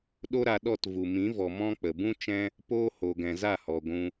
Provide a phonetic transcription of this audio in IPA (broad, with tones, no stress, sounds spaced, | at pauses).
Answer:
ɗ o˦ ɾ a˧ ɗ ɔ˦˨ t v u˨ m ĩ˨˦ v ɔ˨ m ɔ̃˦ k͡p ə˨ b ũ˦ t͡ʃ ɛ̃˦ | p oː˦ h o˨ ɡ ɛ̃˨ z a˦˨ h ɔ˨ ɡʷ ũ˧